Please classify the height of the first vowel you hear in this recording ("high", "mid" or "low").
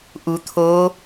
high